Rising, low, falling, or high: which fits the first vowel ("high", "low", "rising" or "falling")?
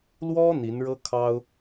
high